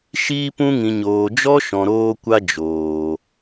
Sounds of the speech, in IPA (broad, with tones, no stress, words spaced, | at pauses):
ʃiː˧pũ˧ŋĩ˨ɲoː˨ d͡ʒɔ˦ʃɔ̃˨ɾoː˧kʷa˧ d͡ʒoː˨